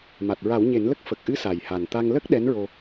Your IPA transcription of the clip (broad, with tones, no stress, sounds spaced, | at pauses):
m a˨˩ t̚ ɹ a˨˩˦ w ɲ e˨˩˦ n l ə˦˥ k̚ f ə˨˩ k̚ ʔ ɨ˧˥ s a˨˩ j h a˨˩ n t̪ a˧ ŋ l ə˦˥ k̚ ɗ ɛ˧˥ n ɹ o˧